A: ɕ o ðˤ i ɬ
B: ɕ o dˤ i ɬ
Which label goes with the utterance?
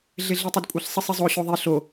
A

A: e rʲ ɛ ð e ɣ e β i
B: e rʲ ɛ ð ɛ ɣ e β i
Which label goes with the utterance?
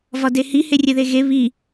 A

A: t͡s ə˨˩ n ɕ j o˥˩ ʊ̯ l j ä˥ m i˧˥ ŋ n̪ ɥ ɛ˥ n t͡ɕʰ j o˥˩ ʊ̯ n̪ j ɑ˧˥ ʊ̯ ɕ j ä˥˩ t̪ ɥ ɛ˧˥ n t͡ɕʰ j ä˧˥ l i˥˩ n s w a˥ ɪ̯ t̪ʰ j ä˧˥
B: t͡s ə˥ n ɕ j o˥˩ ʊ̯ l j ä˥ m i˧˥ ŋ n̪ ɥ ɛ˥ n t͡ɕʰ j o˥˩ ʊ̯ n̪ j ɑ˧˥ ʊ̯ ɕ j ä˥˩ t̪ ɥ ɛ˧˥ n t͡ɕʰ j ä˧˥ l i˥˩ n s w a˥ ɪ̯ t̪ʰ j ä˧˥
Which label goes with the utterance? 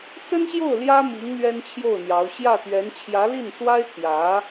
B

